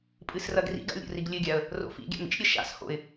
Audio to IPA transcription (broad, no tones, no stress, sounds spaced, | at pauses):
pʼ ɨ s r ɐ ɡ r ḭ ɡ a̰ lʲ ɾʲ o̰ r i ɡ lʲ ɨ ɡʲ a ə̯ | r o̰ f ḭ ɡʲ a̰ m ḭ ʃ ɾʲ ɘ ʃ a̰ s h o̰ ɪ̯